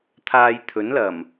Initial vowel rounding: unrounded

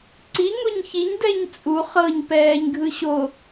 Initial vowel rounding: unrounded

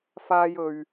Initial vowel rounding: unrounded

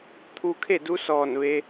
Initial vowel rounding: rounded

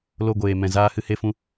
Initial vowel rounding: rounded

